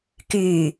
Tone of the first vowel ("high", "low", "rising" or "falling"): low